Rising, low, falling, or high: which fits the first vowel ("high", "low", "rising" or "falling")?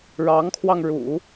rising